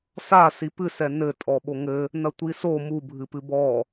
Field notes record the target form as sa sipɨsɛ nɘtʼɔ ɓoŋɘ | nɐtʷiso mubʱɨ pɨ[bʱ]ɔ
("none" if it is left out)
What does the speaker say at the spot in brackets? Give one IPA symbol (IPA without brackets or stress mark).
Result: b